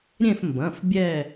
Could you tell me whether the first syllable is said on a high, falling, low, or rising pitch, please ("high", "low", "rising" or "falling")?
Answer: falling